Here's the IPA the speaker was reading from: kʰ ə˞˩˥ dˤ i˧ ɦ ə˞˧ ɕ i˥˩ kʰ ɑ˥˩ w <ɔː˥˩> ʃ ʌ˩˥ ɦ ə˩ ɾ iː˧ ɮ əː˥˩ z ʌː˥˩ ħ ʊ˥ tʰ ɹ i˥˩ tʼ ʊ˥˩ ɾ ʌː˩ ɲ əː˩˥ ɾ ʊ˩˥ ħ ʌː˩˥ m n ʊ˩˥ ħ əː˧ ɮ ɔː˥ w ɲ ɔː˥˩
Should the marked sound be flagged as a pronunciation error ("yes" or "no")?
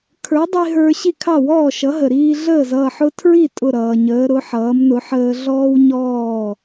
no